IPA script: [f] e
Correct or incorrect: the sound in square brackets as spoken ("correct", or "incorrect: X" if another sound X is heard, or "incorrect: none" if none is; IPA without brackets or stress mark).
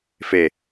correct